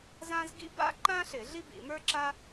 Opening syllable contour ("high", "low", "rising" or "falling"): high